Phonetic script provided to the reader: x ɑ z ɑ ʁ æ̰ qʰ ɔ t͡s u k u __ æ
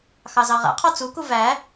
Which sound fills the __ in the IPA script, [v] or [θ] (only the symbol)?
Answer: v